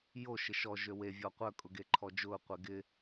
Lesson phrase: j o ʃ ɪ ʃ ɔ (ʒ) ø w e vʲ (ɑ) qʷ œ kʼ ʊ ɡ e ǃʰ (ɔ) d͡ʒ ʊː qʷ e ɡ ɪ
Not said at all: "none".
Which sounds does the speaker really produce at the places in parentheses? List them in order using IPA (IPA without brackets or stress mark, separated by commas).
ʒ, ɔ, ɔ